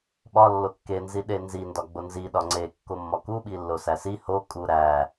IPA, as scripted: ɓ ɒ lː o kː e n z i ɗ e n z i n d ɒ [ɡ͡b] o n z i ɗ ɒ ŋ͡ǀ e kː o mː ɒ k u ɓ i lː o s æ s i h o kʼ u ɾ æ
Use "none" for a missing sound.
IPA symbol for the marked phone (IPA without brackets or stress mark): ɡ͡b